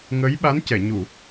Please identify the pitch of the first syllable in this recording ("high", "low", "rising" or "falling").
rising